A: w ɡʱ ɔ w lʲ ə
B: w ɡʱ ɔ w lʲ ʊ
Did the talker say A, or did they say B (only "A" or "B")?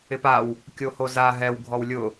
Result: B